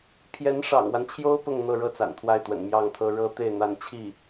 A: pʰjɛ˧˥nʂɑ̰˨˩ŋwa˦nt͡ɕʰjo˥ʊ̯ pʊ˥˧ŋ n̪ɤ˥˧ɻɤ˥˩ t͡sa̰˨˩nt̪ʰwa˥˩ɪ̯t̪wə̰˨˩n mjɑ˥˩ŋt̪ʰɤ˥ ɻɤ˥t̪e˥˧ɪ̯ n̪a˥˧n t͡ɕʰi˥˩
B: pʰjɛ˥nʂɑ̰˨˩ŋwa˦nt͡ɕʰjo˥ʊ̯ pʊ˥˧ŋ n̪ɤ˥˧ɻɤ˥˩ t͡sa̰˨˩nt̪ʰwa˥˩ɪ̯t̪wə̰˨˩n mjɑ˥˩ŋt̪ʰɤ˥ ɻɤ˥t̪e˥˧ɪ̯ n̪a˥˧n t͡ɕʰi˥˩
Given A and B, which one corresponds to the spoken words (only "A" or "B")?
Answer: A